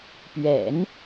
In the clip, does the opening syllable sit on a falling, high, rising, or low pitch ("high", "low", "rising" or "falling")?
low